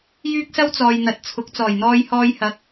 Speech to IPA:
j yː˥ k̚ s ɐ˥ w t͡s ɔː˨ j n̪ ɐ˨˥ t̚ t͡sʰ ʊ˨˥ k̚ t͡s ɔː˨˩ j n̪ ɔː˧ j h ɔː˧ j h ɐ˨˥ k̚

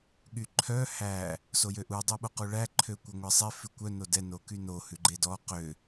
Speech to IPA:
ɠ y ǃʰ œ h æ | s o j ø ʔ u dˤ o ɓ o q u ɭ æ ǃʰ ø kʷ œ ŋʷ æ sˤ e f ʉ kʷ œ n o d ɛ n o k y n o h ʉ ɡ͡ǃ e d ɔ q ø

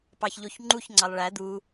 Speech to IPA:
p ɑ ç ʎ o ç ŋ͡ǃ u ç ŋ͡ǀ ɑ lˠ ɭ æ d̪ u

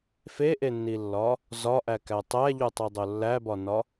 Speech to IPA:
f e ʔ e nː i lː ɒ | z ɒ ʔ æ k æ tˤ æ ʎ u tˤ u dˤ o lː æ b ɒ n ɒ

